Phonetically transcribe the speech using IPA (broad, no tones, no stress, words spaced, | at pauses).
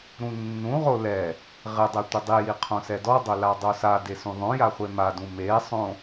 ɾũnːũʁo lɛ | ʁɪdˤɛ tʷɪdˤiji qʰõsɛdɔdˤo ladˤosade sũðˤõja χʷemadũ mesˤõ